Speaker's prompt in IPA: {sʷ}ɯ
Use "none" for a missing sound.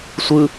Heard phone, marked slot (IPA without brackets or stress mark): sʷ